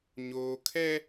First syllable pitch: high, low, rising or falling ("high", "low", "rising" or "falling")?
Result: high